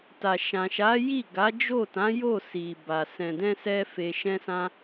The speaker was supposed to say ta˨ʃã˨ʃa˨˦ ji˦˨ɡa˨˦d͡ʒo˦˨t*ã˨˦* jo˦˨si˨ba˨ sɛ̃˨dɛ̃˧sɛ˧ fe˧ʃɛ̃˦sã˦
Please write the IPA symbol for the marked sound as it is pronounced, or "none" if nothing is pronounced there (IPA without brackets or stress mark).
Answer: ã˨˦